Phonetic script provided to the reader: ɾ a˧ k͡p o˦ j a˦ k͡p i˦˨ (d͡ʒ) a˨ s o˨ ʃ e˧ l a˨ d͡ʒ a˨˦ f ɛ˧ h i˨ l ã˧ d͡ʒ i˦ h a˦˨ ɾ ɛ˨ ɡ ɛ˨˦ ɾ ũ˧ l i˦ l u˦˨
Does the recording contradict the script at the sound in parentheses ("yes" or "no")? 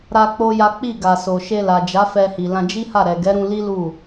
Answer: yes